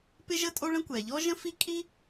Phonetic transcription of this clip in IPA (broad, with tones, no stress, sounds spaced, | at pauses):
p ɪ˥ ʒ ə˥ tʼ o˥ ɭ ə̃˥ kʷ ɛ˩ ʎ ɔ˥ ʒ ə̃˥ f i˥ kʼ i˥